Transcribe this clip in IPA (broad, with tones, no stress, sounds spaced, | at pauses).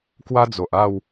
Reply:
k w a˦ d͡z o˨ ʔ a˥˧ w